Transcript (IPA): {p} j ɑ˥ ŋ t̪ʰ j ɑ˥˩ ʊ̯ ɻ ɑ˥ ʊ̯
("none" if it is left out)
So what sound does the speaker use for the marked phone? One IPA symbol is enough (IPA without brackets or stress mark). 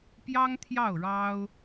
p